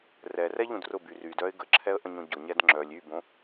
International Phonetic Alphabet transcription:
r ɛ r ɛ ʎ ũ d r ʊ b y r y d œ ɪ̯ ɡ ə ǁʰ ɛ ə̯ ʔ ə̃ ɲ õ ɟ ʊ ɲ ɛ d ŋ͡ǁ œ lʲ y b õ

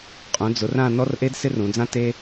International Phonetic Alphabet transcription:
qʼ ũ˩˧ d͡z ʊ˩˧ r ã˦˨ n ɔ˦ r ʔ e˦ d s ɪ˦ r ũ˩˧ d͡z ã˦ t e˦

